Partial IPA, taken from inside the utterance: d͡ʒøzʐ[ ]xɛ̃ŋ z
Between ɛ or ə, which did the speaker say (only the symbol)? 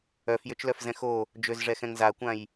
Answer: ɛ